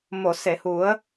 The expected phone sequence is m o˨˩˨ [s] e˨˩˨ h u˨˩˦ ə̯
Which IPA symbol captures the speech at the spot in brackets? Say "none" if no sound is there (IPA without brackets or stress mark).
s